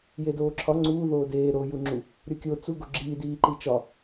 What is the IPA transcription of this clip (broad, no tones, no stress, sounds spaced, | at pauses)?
j e d oː ǁʰ ɒ ŋ͡ǀ uː ð oː d eː ɾ o j u ŋ͡ǁ u | ɾʲ o kʲ o t͡s u ɡ o ɡ͡ǁ iː d iː ǃ i t͡ʃ ɒ